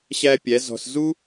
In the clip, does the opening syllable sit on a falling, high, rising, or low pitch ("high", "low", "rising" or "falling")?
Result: high